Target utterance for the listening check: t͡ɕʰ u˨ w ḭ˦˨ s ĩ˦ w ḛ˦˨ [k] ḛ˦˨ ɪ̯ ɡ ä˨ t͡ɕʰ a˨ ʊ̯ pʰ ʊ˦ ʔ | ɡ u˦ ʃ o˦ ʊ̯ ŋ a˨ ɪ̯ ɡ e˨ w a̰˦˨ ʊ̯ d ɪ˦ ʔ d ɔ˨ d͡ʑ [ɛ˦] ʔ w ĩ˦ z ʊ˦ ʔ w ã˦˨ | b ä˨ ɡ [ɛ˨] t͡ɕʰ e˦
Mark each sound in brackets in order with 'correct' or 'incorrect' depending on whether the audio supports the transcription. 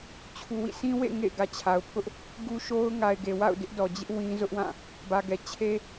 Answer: incorrect: ŋ, incorrect: ɪ˦, correct

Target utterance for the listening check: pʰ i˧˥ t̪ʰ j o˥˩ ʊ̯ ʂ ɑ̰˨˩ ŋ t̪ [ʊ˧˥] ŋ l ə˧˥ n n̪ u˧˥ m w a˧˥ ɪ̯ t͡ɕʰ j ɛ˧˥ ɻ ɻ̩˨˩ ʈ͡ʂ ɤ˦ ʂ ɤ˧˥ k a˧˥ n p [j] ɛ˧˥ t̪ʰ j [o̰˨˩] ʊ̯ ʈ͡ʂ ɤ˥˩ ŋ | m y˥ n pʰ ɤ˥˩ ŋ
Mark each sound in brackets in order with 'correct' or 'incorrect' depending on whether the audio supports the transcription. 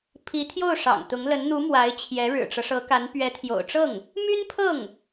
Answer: correct, incorrect: ɥ, correct

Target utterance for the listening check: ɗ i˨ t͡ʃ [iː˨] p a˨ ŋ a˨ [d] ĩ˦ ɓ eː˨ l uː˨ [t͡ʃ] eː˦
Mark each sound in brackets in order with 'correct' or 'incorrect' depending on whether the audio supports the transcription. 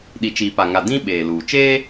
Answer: correct, correct, correct

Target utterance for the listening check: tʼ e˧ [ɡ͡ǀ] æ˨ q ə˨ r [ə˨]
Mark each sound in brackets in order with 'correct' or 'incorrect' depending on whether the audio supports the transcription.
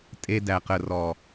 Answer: incorrect: d, incorrect: ɔ˨

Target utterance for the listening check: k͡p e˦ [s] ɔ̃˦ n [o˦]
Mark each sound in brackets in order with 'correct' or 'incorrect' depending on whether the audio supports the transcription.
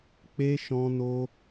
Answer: incorrect: ʃ, correct

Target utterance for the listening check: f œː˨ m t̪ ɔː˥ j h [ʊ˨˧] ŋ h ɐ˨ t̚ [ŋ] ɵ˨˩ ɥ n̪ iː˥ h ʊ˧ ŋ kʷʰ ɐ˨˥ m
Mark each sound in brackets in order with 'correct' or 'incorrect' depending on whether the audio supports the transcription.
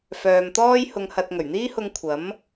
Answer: incorrect: ʊ˨, correct

